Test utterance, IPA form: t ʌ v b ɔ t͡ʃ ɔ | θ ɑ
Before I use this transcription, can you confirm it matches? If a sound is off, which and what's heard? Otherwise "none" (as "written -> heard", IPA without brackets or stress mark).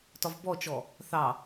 ʌ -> ɒ